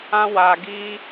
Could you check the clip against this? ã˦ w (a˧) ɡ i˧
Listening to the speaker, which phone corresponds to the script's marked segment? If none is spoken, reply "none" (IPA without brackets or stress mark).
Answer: a˧